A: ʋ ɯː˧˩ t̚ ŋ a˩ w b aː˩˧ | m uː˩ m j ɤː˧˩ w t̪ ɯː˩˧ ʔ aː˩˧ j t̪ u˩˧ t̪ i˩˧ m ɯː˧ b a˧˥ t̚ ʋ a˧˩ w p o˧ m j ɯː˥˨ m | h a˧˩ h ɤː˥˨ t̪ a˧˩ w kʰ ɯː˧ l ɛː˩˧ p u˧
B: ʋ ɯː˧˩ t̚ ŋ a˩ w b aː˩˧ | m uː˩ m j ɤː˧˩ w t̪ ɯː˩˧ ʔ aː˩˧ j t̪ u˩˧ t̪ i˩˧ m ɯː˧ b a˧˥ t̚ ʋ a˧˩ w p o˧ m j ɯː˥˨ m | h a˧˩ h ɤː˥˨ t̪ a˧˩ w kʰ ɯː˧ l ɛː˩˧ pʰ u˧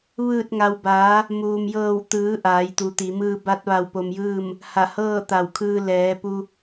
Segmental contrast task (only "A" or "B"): A